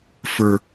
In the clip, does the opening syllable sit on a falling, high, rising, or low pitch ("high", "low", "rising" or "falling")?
high